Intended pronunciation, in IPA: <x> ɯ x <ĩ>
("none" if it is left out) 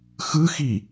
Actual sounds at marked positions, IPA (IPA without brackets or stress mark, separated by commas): x, i